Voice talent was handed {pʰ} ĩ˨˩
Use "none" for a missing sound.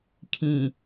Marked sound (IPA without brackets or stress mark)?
kʰ